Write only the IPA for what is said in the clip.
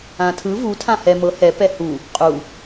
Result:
ã tʰ ɯ v u tʰ ã h ɛ m ɤ h ɛ p ɛ h u | qʼ u

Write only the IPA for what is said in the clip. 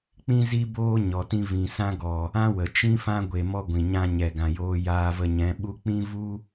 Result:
k͡p ĩ˦ z i˦ b oː˦ ɲ ɔ˧ t ĩ˦ v ĩ˨ s ã˦ ɡ ɔ˨ | ã˦ w ə˨ t͡ʃ ĩ˦ f ã˦ ɡʷ e˧ m ɔ˦ ɡʷ ĩ˨ ɲ ã˧ ɲ ɛ˨ ɡ ã˨ j oː˧ j aː˧ v ə˧ ɲ ɛ̃˨˦ ɓ u˦ k͡p ĩ˦ v u˦

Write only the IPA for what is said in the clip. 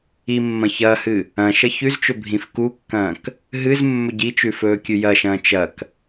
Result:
i mː ɐ̃ ç ɐː h ɨ | ɐ̃ ʃ ɐ ç ʉ z t͡ʃ ɵ bʱ ĩ f k u kː ɐ̃ː k | ɦ ɨ z mː ɵ ɟ i t͡ʃ ʉ f ɵː kʲ ʉ j ɐ ʃ ɐ̃ː t͡ʃ ɐ k

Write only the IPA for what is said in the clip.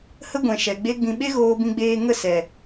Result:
h ə˦ ɡʷ ɛ̃˨ ʃ ɛ˨ ɡ͡b e˦ ɡ͡b ĩ˨ ɓ e˦ ɣ oː˧ b ĩ˧ ɡ͡b eː˧ ŋ ə˦˨ s ɛ˨

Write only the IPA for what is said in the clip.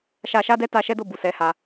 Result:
ʃ a˧ ʃ a˦ d ɛ˦ t a˧ ʃ ɛ˦ d o˦˨ b u˨ s ɛ˨˦ h a˧

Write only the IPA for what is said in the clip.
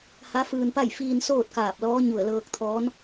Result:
h a˧˥ f ɯː˧ n p a˥˨ j f iː˧ n s oː˥˨ t̚ k aː˧˩ p̚ l ɔː˧˥ ɲ u˧˩ ə̯ l ɤː˧ k̚ t̪ʰ ɔː˧˥ n

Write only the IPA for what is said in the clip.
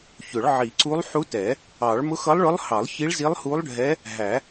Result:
ç ʊ˨˩˦ ɭ ʕ i˨˩˦ ǀ u˧˥ lˠ ħ u˧˥ t ɛ˨˩˦ | ɑ˨˩˦ ɭ m ʊ˧˥ x ʌ˧˥ lˠ ɭ ʊ˧˥ lˠ h ɑ˨˩˦ lˠ ç i˧˥ ɭ z i˧˥ lˠ h u˧˥ lˠ ɖʱ ɛ˧˥ | ɦ æ˨˩˦

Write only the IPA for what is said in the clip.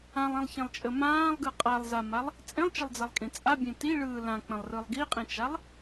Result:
ã lˠ ĩ lˠ ç ẽ lˠ t͡ʃʼ ə m ãː lˠ ɡ ɯ qʼ a lˠ z a m a lˠ | t͡sʼ ẽ lˠ t͡ʃ ə lˠ d͡z a lˠ kʼ ĩ t͡sʼ a bʲ ẽ t i ɭ ɯː l ã k͡p ə̃ lˠ r ɯ lˠ ɡ i qʼ ĩ t͡ʃ a lˠ

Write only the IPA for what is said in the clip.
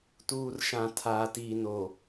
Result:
t uː˨ r ʃ ã˨ tʰ aː˨ t iː˨ n o˨

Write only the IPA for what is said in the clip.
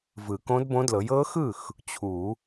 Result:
v ɯ˨˩˦ k õ˧˥ d b õ˧˥ d l ɤ˩˥ j ɤ˧˥ x ɯ˥˩ x | t͡ɕʰ u˨˩˦

